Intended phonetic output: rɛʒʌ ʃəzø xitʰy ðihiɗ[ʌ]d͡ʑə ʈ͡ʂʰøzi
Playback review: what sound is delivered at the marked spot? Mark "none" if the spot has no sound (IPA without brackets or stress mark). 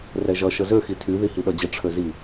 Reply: ʌ